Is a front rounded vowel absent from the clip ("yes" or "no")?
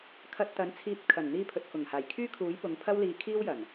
no